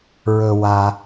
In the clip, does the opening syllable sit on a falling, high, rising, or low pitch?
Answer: low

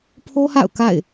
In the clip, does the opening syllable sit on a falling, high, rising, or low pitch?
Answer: high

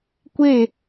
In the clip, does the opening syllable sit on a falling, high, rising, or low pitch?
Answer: falling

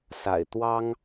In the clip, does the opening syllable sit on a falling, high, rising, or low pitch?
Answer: low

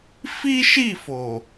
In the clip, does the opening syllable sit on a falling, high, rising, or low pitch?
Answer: high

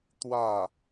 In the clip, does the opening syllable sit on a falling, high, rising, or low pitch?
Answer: falling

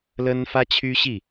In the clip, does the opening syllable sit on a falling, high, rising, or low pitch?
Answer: high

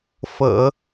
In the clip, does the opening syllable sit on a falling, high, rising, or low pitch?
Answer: low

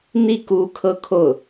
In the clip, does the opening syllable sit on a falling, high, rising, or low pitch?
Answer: falling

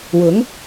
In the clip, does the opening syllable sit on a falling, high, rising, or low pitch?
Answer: rising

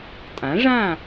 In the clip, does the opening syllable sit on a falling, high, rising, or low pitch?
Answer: rising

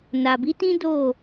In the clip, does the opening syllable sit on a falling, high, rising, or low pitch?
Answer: low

